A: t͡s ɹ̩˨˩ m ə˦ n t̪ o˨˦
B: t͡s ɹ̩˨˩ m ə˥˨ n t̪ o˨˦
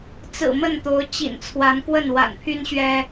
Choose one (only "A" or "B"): B